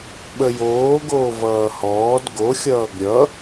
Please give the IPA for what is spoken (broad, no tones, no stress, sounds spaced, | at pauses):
ɓ ə j oː ɡ oː v ʌː h ɔː d ɡ o xʲ ʌː ɡ ɾʲ ʌ